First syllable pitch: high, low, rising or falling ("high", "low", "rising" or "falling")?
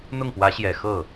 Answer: falling